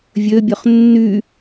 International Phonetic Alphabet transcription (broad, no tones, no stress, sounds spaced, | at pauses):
vʲ ø bʲ ø χ nː y